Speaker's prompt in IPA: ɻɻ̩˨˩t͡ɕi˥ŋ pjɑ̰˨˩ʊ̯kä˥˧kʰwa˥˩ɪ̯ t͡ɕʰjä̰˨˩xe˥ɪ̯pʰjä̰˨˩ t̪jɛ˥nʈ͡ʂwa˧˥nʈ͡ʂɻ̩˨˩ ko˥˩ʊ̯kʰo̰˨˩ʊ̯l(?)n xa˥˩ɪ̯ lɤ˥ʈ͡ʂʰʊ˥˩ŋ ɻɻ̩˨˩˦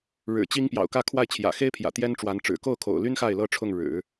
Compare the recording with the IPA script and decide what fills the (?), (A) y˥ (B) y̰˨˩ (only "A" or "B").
A